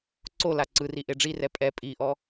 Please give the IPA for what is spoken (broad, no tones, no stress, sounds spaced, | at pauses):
ǀ o l a ǀ ɯ r i ʔ e ɖ͡ʐ i r ɛ pʼ ɛ pʼ i ʔ ɔ